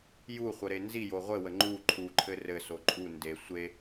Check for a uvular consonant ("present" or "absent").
present